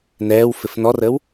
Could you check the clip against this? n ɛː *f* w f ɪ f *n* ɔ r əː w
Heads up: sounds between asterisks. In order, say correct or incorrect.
incorrect: none, correct

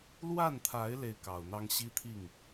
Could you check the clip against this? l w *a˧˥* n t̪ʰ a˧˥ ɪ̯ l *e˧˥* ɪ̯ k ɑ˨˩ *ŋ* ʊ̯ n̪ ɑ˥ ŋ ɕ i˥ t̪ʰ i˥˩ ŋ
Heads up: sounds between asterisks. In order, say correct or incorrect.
incorrect: a˥˩, incorrect: e˥˩, incorrect: none

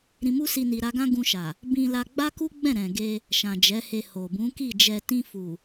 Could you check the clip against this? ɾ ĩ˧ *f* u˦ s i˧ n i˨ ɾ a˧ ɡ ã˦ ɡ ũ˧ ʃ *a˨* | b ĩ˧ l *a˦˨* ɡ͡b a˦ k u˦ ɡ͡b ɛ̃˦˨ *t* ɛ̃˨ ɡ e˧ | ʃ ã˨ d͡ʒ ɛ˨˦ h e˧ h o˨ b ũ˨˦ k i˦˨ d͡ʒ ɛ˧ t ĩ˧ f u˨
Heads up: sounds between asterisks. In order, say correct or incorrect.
incorrect: m, correct, incorrect: a˧, incorrect: ɾ

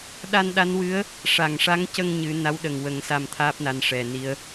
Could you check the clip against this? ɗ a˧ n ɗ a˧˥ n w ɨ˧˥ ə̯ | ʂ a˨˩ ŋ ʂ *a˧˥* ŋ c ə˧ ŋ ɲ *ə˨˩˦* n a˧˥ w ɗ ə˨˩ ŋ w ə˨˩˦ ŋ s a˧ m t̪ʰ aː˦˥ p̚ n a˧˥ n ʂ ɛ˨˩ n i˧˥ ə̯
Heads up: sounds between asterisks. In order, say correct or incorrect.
correct, incorrect: ɨ˨˩˦

